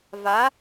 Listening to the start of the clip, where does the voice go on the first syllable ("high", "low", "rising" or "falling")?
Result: rising